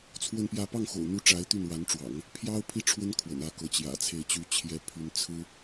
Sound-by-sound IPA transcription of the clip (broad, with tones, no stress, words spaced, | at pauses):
t͡sʰwə˥˧npjä˥˧ pɑ˥˩ŋxo̰˨˩ʊ̯n̪u˧˥ ʈ͡ʂa˧˥ɪ̯t̪y˥˩nwa˧˥nʈ͡ʂwɑ̰˨˩˦ŋ | pʰjɑ˥ʊ̯ pʰi˥ʈ͡ʂʰwə˥n kʰwə̰˨˩nä˥˩ kɤ˧˥t͡ɕjä̰˨˩t͡sʰe˥˩ɪ̯t͡ɕy˥ t͡ɕʰjɛ˥pʰy˥n t͡sʰɹ̩˥